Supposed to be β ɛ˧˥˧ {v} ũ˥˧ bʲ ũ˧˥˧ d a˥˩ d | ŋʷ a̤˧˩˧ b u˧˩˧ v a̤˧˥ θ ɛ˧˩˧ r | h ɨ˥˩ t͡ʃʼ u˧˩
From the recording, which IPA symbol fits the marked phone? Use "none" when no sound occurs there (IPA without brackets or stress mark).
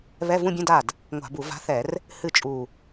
v